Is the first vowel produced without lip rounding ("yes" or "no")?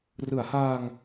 yes